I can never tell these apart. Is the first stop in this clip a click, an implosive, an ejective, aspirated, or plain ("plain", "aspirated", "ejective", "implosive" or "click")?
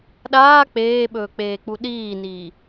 implosive